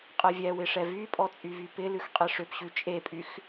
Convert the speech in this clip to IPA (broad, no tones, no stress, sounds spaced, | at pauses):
qʼ ɛ vʲ ɛ w ɪ ʂ ɛ v y pʼ ɔ t͡sʼ y v y p ɪ l ʉ x qʼ e ʂ ʏ p ɕ ʉ t͡ʃʼ e pʼ y x